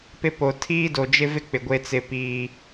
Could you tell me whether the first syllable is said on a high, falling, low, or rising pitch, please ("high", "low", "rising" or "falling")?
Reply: high